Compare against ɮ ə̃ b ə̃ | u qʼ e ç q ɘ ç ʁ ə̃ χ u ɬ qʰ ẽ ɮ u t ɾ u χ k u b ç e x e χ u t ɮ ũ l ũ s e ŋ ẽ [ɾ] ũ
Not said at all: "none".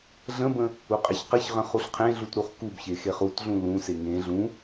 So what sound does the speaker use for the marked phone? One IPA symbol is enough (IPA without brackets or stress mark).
ɮ